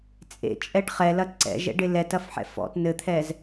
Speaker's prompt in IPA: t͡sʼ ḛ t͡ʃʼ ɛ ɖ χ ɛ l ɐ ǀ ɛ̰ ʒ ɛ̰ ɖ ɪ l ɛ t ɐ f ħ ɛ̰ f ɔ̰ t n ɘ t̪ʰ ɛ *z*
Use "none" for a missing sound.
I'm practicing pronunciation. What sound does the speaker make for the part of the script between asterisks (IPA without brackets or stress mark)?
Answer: z